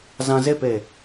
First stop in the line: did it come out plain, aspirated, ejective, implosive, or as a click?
plain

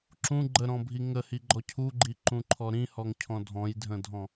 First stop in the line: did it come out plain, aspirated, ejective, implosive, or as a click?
click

